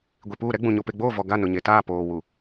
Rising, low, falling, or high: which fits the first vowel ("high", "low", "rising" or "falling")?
low